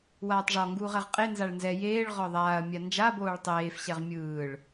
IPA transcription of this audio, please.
w aː tˤ ʐ ɔ ŋ ɡ uː ʁ ɛ ʁ qʼ e n z a ɭ n z ɛ j eː ɭ ʁ ɔ ðˤ aː ɐ̯ mʲ a n d͡ʒ a b oː ɭ tˤ eː f ɕ ɛ ʁ mʲ ɯː ɭ

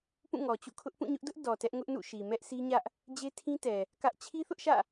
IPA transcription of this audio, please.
p ũ˦˨ ŋ ɔ˨ t͡ɕ ṵ˦˨ kʰ ʊ˦ ʔ p ũ˦˨ ɲ ʊ˦ ʔ d ʊ˦ ʔ d ɔ˨ t ɛ˦ ʔ ŋ ʊ˦ ʔ n ṵ˦˨ ʃ i˨ m ɛ˦ ʔ s i˦ ɲ ä˦ ʔ | d͡ʑ e˦ tʰ ĩ˦ t ɛ˨ | k ä˦ ʔ t͡ɕʰ i˦ θ ʊ˦ ʔ ʃ ä̰˦˨

